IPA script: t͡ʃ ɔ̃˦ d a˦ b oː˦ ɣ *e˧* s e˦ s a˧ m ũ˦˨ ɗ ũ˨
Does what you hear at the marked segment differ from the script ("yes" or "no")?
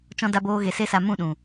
no